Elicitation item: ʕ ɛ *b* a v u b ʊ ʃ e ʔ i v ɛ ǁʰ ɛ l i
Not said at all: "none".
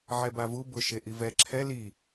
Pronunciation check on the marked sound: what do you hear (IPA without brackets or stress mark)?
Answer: b